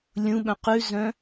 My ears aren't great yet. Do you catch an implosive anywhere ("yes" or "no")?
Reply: yes